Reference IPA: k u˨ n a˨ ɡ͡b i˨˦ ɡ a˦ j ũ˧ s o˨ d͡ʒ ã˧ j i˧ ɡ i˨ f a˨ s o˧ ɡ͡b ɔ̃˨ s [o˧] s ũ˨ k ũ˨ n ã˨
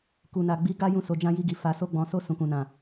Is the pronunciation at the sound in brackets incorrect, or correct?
correct